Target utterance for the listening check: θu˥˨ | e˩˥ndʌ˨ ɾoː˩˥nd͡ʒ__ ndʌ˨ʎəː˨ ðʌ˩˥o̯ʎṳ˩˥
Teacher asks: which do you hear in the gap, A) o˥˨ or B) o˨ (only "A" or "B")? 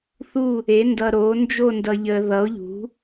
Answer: A